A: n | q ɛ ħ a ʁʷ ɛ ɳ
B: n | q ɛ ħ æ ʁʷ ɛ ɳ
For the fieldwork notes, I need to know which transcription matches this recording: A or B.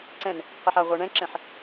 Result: A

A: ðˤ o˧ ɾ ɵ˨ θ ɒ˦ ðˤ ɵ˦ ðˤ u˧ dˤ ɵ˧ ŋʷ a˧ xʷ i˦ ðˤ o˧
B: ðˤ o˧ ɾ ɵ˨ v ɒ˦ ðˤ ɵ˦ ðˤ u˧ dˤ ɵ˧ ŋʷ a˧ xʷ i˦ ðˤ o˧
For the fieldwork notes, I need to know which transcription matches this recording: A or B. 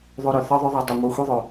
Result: A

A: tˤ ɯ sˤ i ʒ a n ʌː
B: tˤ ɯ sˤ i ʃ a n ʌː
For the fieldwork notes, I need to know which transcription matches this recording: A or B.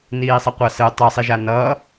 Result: A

